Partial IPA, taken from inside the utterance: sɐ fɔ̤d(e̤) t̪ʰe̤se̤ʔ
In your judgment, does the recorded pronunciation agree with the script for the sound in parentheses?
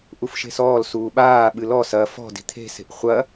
no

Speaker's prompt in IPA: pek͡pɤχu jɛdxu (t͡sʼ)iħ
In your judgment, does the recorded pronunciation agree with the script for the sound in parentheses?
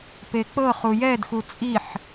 yes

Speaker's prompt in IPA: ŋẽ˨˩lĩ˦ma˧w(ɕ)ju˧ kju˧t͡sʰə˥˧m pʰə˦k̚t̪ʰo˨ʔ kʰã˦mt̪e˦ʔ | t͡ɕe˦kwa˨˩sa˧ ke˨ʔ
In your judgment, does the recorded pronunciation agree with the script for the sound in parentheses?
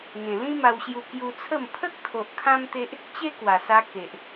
yes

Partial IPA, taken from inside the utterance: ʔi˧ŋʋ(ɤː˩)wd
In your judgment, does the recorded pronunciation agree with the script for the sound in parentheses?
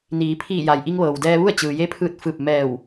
yes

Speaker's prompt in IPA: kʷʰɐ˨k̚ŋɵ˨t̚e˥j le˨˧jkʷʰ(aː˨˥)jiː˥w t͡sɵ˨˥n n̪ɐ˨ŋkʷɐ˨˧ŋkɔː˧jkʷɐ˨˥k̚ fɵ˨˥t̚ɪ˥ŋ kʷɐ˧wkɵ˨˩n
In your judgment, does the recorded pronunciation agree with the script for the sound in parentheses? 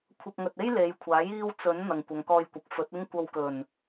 yes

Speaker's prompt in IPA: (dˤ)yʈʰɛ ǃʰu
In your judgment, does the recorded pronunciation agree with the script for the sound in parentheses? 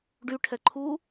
no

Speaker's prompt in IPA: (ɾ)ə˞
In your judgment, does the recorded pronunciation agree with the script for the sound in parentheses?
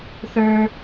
no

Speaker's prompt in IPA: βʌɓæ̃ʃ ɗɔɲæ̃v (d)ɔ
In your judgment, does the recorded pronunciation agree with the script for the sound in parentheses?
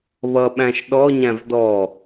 yes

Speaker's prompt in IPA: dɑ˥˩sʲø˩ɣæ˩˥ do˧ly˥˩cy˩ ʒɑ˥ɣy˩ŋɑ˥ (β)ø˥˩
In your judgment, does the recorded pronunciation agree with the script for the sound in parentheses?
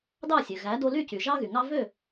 no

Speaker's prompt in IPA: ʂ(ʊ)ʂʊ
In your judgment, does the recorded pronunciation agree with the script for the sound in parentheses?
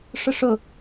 yes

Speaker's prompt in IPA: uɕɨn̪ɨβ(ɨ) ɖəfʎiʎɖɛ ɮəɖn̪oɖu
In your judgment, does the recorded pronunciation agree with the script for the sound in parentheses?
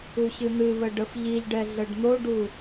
no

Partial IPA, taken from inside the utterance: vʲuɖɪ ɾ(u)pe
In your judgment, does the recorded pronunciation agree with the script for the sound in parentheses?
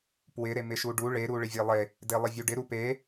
yes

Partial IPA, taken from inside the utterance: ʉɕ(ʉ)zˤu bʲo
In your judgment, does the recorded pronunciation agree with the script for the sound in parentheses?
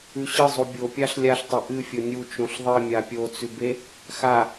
no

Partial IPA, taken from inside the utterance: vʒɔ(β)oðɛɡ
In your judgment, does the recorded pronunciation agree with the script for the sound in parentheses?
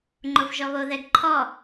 yes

